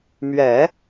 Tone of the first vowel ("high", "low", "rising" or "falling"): low